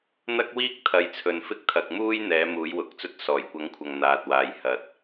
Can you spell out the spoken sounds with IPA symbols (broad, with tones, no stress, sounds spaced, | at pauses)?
n̪ ɐ˥ k̚ w iː˥ k̚ t̪ʰ ɐ˨ j t͡sʰ ɵ˨ n f ɪ˥ k̚ t̪ʰ ɐ˨ k̚ m uː˥ j n̪ ɛː˨˥ m uː˨˥ j w ʊ˨˥ k̚ t͡s ɵ˥ t̚ s ɔː˨˩ j kʷ ɐ˨˥ ŋ kʷʰ ɐ˨ ŋ n̪ aː˨ t̚ w aː˨ j h ɐ˨ t̚